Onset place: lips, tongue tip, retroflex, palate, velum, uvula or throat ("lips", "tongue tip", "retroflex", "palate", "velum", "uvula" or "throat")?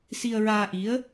tongue tip